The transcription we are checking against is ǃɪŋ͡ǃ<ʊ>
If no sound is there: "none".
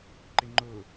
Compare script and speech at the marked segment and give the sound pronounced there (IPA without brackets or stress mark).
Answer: ʊ